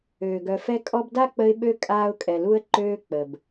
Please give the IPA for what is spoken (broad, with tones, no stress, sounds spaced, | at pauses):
øː˩ ɡ œ˨ f ɛ˥ kʼ ɔ˦ b d a˥ k͡p ə˦ ɪ̯ ɓ ø˥ kʼ aː˥ ʊ̯ kʼ ɛ˨ l u˥ ə̯ ǃ øː˦ k͡p ə˩ b